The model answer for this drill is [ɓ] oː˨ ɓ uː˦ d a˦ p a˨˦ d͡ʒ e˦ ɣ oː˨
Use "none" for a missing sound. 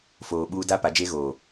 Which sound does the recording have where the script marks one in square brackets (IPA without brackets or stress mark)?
f